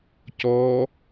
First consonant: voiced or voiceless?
voiceless